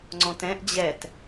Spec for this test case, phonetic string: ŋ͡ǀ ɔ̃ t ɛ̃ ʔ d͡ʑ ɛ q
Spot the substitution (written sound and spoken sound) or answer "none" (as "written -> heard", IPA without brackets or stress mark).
q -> t